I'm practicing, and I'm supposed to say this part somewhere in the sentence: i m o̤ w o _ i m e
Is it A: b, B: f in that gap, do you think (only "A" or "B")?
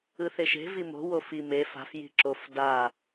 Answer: B